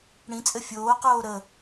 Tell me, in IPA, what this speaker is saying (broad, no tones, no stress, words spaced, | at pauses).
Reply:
ɽĩt͡sʼɘ fʲoːqoː ɾə